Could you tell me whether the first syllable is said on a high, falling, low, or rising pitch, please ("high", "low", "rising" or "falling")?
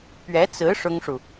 rising